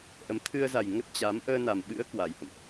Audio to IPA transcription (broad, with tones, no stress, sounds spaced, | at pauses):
ʔ ə˨˦ m t̪ʰ ɨ˧ ə̯ z a˨˩ j ŋ ə˦˥ t̚ t͡ɕ a˨˦ m ʔ əː˧ n a˨˩ m ɓ ɨ̰˧˥ ə̯ k w a˨˩ j h ə̰˧˨ m ʔ